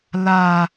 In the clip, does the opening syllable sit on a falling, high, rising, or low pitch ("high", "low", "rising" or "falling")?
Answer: low